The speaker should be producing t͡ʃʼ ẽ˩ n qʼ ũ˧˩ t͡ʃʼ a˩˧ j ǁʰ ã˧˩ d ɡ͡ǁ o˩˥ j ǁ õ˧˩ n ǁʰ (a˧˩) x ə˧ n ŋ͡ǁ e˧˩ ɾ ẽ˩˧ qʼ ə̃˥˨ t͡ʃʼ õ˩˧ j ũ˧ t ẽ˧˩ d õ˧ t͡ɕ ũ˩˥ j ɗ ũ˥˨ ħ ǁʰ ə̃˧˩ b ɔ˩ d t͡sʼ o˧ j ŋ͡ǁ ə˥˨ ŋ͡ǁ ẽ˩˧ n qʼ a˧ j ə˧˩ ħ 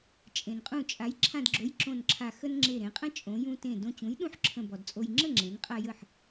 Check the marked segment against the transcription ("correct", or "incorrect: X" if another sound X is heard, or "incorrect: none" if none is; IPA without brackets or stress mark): correct